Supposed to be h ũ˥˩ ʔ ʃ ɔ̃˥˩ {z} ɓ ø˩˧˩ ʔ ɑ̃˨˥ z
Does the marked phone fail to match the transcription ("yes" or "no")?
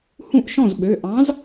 no